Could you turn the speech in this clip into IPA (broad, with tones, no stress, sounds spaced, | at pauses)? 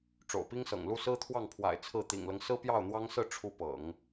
ʈ͡ʂ o̰˨˩ ʊ̯ p i˥ ŋ s ɤ̰˨˩ ŋ l u˥˩ s ɹ̩˥ t̪ʰ w ɑ˥˩ ŋ pʰ w a̰˨˩ ɪ̯ t͡sʰ ɹ̩˥˩ t̪ ḭ˨˩ ŋ l ɤ˦ ŋ s ɹ̩˥ p j ɑ˥˩ ʊ̯ n̪ w ɑ˥ ŋ s ɹ̩˥˩ ʈ͡ʂʰ u˥ p ɤ̰˨˩˦ ŋ